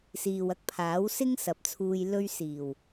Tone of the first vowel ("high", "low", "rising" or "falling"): low